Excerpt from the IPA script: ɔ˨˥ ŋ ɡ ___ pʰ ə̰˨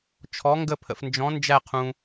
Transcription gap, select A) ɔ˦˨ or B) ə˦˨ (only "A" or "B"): B